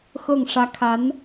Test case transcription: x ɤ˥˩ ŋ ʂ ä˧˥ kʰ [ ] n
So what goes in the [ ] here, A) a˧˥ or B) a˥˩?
A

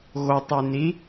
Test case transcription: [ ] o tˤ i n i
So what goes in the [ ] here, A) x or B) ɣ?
B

